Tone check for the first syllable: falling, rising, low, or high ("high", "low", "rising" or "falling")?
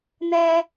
high